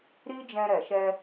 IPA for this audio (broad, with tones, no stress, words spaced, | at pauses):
ɾi˦d͡ʒɛ̃˧ ɾɛ˨ʃɛ˧